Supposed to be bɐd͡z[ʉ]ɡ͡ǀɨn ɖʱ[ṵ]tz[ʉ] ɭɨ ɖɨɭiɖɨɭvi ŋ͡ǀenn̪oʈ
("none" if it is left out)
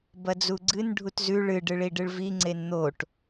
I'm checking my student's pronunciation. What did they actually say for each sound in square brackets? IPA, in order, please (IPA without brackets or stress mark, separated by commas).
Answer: u, u, ʉ